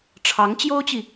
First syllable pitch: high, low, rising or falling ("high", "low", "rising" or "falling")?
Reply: rising